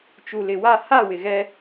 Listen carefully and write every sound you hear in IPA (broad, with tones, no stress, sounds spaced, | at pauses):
t͡ʃ u˨ l ɪ˨ w a˦˨ h a˦˨ w ɪ˨ ɣ ɛ˦